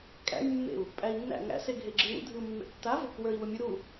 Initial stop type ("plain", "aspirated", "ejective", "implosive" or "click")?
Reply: ejective